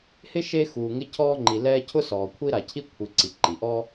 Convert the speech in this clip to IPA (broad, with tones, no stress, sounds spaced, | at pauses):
h ɪ˥ ʃ e˦ x uː˨ ŋ ɪ˦ cʰ ɔː˦ ŋ͡ǃ i˨ l ɛː˦ cʰ ʊ˥ s ɔː˨ kʷʰ i˥ ɾ a˨ cʰ i˥ kʷʰ i˨ ǀ i˩ ǃ i˩ ʔ ɔ˥